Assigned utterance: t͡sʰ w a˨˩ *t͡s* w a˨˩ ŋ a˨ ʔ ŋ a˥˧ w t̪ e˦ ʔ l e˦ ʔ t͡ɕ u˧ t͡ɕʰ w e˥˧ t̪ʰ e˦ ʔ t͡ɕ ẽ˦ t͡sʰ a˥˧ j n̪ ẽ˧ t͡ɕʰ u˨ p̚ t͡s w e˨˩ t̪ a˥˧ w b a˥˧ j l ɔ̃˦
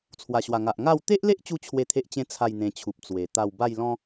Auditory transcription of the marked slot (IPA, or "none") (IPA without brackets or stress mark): ɕ